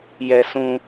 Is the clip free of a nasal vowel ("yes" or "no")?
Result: no